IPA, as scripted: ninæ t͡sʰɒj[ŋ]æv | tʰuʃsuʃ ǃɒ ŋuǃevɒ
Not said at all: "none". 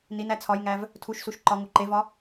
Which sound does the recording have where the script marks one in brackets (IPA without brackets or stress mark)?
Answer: ŋ